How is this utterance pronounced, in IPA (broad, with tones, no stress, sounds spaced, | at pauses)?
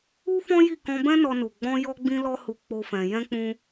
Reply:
u˦ f ɔ̃˦ j i˦˨ k ɔ̃˧ b ɛ̃˦ n ɔ˧ n u˨ ɡ͡b ɔ̃˧ j ɔ˧ ɡ͡b ĩ˦ l ɔ˦ h u˧ k͡p o˦ f ɛ̃˧ j ɛ̃˦ k͡p ũ˦